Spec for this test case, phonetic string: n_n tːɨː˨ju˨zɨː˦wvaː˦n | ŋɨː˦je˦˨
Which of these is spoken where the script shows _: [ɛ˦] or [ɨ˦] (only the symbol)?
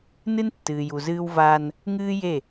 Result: ɨ˦